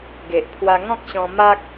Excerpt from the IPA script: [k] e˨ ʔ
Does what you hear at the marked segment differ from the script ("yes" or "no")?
yes